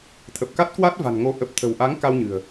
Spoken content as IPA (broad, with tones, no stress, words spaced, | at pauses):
t̪ʰə˨˩p̚ka˦˥t̚kwa˦˥t̚ va̤˨˩nŋo˨˦ ʔə˨˩p̚t̪ʰə̤˨˩wʔa˨˦ŋ ka˧wɲɨ̤˨˩ə̯